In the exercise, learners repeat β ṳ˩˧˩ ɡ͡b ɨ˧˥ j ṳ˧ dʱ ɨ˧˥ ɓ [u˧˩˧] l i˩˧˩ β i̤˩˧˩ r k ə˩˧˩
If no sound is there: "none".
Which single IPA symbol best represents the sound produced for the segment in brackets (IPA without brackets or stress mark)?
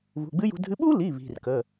u˥